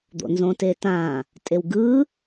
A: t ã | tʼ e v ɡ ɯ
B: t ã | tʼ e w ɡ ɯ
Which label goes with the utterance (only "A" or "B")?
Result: B